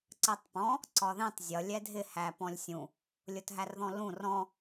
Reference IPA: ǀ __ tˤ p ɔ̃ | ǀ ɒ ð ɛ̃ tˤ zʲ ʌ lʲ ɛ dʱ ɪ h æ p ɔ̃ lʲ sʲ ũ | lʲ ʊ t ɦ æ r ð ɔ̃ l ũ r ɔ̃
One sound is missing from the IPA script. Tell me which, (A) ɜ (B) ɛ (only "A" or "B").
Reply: A